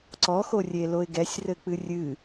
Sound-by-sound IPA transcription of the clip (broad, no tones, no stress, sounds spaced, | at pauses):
ǀ ɔ x o rʲ e l o ɪ̯ ɡ ɛ sʲ r ɘ k͡p ɨ rʲ ɨ